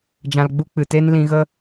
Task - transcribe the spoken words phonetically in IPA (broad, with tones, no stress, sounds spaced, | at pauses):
d͡ʒ ã˧ l ɡ͡b u˦ k͡p ɨ˨ t e˦ n l ĩ˧ ɣ ə˦